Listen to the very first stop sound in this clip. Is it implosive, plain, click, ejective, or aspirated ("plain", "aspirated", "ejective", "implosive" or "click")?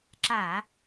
click